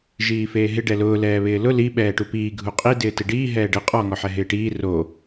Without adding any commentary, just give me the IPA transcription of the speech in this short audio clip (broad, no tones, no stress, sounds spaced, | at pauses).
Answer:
ʒ iː f eː ɦ ɪ ɖ ɛ l ʊː l ɛː β ɪː l ʊ l i ɓ ɛː ʈ u p iː ɡʱ u qʼ i d ɪː t ɪ ɖ iː ɦ ɛː ɖ ɪ qʼ ɔ ŋ ɔ ħ ɛ ɦ ɪː ʈ iː r o